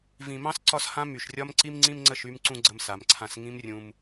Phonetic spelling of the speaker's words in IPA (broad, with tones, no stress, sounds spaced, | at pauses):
v ĩ˨ m ɑ̃˦ s ǀ ɒ˦ s h ã˦ m y˨ ʃ rʲ ɒ˦ m ǀ i˦ m ŋ͡ǀ ĩ˦ m ŋ͡ǀ ə˦˨ ʃ y˧ m ǀ ũ˧ ɡ͡ǀ ə˧ m s a˨ m ǀʰ ã˧ s ŋ ĩ˦ m rʲ ũ˧ m